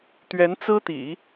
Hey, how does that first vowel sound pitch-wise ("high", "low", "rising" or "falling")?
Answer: rising